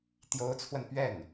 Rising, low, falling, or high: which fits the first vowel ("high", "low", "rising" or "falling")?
rising